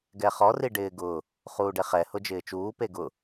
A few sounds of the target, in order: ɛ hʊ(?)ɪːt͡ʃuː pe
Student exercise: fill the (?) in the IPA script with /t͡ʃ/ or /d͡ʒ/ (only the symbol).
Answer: d͡ʒ